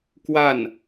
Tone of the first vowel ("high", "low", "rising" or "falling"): falling